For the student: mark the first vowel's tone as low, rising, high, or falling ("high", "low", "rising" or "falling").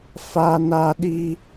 high